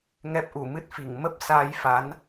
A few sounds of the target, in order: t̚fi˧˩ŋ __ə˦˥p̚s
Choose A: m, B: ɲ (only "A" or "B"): A